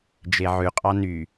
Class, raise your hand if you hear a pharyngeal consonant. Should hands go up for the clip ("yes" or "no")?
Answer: yes